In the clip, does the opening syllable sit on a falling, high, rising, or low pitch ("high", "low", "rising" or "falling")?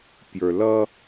low